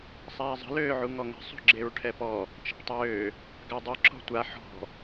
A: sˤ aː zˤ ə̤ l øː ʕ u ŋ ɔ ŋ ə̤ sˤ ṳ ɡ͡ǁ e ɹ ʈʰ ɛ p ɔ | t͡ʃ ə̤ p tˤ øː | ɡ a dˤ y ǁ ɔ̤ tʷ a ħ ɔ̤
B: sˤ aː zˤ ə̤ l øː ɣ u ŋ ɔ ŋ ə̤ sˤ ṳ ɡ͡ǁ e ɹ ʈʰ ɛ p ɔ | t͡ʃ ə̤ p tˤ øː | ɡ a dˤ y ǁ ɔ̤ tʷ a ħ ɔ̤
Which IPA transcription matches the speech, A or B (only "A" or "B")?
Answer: A